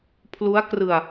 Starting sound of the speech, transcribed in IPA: pʰ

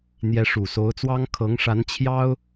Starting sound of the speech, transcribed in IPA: n̪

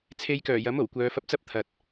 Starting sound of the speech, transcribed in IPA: t͡sʰ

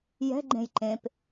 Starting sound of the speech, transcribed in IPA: j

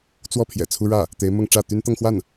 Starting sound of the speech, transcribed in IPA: t͡s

